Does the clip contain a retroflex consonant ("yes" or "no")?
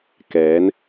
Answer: no